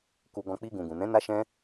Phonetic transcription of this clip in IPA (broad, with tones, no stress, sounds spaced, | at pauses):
k u˧ ɡ ɔ̃˧ k͡p i˧ ɡ ũ˨ ɡ ũ˨ n ɛ̃˨˦ n a˦ ʃ ɛ̃˦